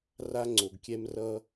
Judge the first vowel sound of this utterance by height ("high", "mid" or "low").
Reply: low